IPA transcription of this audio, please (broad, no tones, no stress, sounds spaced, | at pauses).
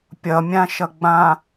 pʲ ʌ mʲ ã ʃ ʌ ɡ͡b ã